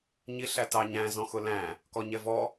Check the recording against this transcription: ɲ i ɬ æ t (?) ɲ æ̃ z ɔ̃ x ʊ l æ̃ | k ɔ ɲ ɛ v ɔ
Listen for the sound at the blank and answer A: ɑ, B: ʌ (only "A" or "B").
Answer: A